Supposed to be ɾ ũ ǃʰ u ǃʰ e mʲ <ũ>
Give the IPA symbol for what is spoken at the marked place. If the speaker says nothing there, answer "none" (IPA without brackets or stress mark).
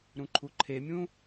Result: ũ